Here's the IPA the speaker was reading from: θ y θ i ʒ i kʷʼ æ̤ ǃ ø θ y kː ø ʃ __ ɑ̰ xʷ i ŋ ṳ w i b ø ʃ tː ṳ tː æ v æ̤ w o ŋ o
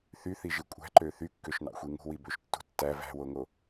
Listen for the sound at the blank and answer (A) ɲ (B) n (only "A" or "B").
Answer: B